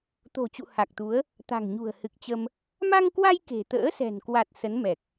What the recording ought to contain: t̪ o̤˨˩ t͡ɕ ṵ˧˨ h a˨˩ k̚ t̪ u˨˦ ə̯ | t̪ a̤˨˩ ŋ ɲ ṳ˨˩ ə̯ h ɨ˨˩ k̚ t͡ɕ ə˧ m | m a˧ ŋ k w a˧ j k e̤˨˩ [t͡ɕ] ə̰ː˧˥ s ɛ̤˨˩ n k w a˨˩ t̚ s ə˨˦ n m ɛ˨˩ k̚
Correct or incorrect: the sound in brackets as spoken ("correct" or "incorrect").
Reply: incorrect